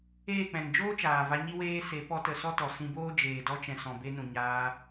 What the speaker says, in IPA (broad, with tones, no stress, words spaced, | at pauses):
eː˦˨k͡pɛ̃˨ŋd͡ʒoː˦ t͡ʃaː˨va˧ɲi˦weː˦ se˨˦pɔ˧tə˨ sɔ˦tɔ˨sĩ˧boː˦ d͡ʒeː˨dɔ˧t͡ʃɛ̃˨ sɔ̃˨be˧nũ˨ ɲaː˧